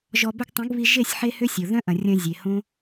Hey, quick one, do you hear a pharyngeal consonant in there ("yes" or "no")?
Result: yes